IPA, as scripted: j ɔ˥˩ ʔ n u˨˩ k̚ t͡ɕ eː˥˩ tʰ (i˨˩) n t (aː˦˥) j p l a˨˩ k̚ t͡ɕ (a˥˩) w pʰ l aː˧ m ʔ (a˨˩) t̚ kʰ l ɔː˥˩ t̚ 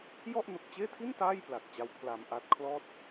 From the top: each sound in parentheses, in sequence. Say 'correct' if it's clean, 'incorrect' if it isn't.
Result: incorrect, incorrect, incorrect, incorrect

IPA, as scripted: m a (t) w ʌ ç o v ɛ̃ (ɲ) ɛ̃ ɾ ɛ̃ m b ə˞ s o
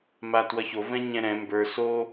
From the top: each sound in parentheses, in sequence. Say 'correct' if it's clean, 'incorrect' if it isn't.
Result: correct, correct

